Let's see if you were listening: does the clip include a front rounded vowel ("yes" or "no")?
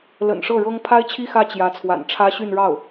yes